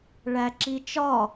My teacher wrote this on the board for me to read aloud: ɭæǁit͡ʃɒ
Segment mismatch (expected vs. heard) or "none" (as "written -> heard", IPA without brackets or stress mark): none